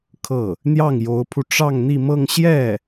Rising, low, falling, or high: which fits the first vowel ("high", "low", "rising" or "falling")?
falling